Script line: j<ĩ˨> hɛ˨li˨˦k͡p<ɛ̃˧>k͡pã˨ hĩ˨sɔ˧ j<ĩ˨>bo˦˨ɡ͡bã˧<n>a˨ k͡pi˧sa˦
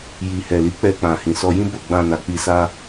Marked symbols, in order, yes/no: no, no, no, yes

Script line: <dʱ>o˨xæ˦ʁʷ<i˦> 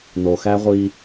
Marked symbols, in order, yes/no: no, yes

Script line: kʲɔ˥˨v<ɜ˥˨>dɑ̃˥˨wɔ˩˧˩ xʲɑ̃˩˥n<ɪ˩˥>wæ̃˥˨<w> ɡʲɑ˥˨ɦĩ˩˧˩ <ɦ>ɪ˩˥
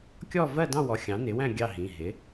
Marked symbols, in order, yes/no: yes, yes, no, yes

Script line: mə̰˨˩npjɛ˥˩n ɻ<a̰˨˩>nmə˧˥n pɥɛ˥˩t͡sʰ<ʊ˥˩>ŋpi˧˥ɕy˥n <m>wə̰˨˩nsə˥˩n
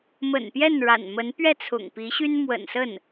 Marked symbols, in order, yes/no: yes, no, yes

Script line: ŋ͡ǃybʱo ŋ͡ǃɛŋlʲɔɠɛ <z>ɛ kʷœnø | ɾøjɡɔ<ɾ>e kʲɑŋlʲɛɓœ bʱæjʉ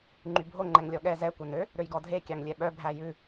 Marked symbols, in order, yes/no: yes, no

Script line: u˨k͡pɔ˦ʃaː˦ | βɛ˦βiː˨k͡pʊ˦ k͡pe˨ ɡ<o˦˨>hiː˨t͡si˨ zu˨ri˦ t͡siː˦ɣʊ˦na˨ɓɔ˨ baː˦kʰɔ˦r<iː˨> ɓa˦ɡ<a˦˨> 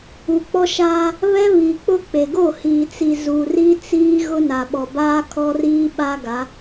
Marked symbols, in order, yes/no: yes, no, no

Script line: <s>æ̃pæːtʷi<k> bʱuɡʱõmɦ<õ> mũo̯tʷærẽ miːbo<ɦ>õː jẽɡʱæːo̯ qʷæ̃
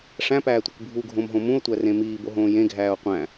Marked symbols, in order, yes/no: no, yes, yes, yes

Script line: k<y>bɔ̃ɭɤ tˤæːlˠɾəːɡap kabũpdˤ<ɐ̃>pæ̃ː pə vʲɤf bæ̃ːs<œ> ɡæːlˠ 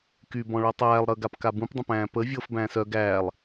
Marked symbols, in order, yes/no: yes, no, yes

